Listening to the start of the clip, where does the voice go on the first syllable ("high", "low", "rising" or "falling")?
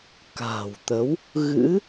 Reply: low